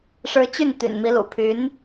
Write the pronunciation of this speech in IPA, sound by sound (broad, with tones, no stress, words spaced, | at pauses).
ʂɻ̩˧˥t͡ɕy˥˩n t̪y̰˨˩nmi˧˥lṵ˨˩ pʰy˧˥n